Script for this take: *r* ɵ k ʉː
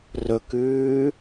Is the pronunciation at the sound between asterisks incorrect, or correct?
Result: correct